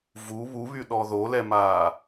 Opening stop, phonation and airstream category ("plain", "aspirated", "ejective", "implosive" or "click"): implosive